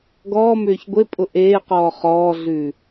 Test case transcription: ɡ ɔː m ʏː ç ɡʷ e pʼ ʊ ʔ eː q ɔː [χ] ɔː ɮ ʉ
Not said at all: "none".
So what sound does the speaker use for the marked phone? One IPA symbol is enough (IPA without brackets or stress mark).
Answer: χ